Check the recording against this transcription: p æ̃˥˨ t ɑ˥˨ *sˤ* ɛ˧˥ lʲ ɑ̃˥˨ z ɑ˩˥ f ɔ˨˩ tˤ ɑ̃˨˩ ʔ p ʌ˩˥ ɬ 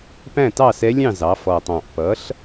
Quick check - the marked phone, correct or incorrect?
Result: incorrect